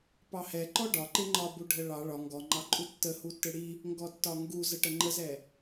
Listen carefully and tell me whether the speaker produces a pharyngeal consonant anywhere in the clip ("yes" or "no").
no